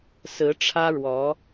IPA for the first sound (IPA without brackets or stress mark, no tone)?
s